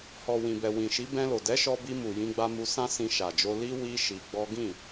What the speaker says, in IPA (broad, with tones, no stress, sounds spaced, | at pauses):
h ɔ˨ w ĩ˨ b ɛ˨ w ĩ˨ ʃ i˨˦ b ɛ̃˧ l o˨ d ɛ˨˦ ʃ ɔ˧ b i˧ m u˨ j ĩ˧ ɡ͡b a˧ m u˧ s ã˦ s ĩ˧ ʃ a˨ d͡ʒ o˧ l i˦ w i˦ ʃ i˧ ɡ͡b ɔ˦ ɡ ĩ˦˨